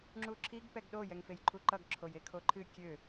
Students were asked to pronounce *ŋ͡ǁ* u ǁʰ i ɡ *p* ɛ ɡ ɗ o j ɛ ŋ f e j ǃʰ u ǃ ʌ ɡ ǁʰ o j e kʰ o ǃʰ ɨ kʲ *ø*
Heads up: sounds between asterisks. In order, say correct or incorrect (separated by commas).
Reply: correct, correct, correct